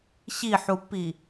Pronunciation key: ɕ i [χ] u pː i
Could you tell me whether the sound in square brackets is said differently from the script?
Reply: yes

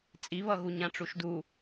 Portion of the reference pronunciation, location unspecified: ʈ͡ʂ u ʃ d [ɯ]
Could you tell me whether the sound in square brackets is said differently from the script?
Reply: yes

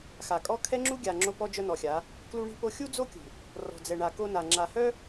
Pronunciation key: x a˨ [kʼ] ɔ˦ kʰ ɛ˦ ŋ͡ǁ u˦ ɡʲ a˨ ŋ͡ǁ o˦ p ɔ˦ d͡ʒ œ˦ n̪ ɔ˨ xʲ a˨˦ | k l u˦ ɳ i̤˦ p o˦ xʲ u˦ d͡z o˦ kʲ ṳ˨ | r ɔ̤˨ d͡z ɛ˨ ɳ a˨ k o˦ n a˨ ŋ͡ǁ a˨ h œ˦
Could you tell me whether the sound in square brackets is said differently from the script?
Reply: no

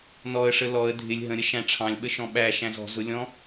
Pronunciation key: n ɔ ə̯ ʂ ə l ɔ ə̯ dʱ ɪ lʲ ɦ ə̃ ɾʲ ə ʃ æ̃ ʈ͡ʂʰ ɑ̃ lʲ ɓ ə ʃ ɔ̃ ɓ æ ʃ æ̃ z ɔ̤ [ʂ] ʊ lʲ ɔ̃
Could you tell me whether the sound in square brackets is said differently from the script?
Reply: yes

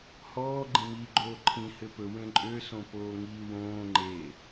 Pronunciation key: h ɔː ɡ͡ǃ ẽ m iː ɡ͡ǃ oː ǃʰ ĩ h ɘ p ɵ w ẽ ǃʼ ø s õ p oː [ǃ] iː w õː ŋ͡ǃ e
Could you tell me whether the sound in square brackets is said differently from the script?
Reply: yes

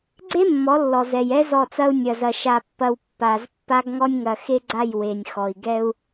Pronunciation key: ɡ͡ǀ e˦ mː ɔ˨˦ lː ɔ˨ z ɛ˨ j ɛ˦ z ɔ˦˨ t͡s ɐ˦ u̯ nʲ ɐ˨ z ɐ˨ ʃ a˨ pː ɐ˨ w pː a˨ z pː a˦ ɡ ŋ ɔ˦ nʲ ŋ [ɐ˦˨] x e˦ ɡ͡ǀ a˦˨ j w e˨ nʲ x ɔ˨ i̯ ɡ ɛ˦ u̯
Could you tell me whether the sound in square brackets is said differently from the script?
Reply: yes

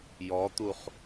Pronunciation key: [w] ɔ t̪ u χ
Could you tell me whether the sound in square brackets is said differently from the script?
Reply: yes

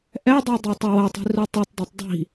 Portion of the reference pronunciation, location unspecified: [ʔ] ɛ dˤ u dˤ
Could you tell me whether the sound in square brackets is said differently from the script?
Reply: no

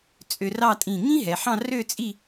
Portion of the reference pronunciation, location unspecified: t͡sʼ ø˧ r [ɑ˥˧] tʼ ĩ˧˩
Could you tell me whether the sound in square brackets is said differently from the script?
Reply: no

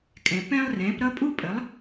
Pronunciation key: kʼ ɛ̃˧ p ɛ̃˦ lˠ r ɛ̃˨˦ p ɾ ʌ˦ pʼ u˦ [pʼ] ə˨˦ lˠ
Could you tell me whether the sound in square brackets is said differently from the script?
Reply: no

